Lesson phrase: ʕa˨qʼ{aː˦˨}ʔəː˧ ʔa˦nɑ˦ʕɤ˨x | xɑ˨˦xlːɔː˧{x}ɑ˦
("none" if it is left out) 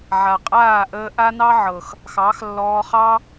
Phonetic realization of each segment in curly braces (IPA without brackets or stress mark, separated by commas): aː˦˨, χ